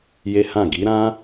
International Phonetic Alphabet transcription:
j e˦ h ã˦˨ ɡ i˨˦ ɾ ã˦

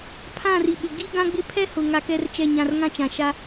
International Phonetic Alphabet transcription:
pʰ ã˦˨ r i˨ ɓ ɪ˨ ɡ i˦ ɡ ã˦ ɡ͡b ɪ˦ pʰ ɛ˦ h ʊ˨ ŋ a˦ k ɛ˦ r t͡ʃ ɛ˦˨ ɲ ã˦˨ r ŋ ã˦ t͡ʃ ã˨ ʃ a˦

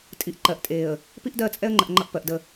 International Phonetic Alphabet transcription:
tʼ i˨ ʔ ǃ ɜ˨ ʔ tʼ eː˨ ə̯ | p i˦ ʔ d ɜ˦˨ t͡sʼ ɛ˦ ə̯ ŋ͡ǃ ə˨ ʔ ŋ͡ǃ ʌ˦ ʔ p ɜ˨ ʔ d ə˦˨

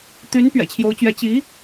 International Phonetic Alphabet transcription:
t̪ y˧˥ n p ɥ ɛ̰˨˩ t͡ɕʰ j o˧˥ ʊ̯ t͡ɕ ɥ ɛ˧˥ t͡ɕ i˧˥

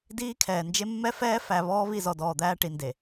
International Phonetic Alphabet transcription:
d iː˦ kʰ ɛː˨ n d͡ʒ e˦ mː ɛ˦ f ɛː˦ f æ˨ β ɔː˦ β i˦˨ z ɔ˨ d ɔː˨ d̪ æː˦ ʈ i˨ n d e˨

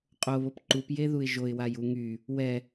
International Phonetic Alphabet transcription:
qʼ o β o p ǃ u p j e ð u ɪ̯ ʒ o ɪ̯ w a j u ŋ y | w ɛ

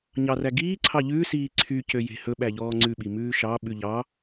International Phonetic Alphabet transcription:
ɲ ɑ r æ ɡ iː ǀʰ ɑ ʎ ʉː s iː ǀʰ y c ø j e̤ h ɵ ɓ æ ʎ ɔː ŋ͡ǀ ʉ ɓ i m ʉː ʃ ɑ ɓ ʉ ʎ ɑ

